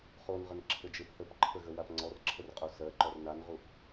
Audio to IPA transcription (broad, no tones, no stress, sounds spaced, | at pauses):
χ o n ʁ ə n ǁʰ ɘ d͡ʒ e p θ ə p ǃʰ ə ɣ ə w a p ŋ͡ǀ ɔ r ǁʰ ə r qʼ o s ɜ ǃ ɔ r n a n ʁ u p